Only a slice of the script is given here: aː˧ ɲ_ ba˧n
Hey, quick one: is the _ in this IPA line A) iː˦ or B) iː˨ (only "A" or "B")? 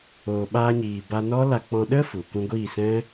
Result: B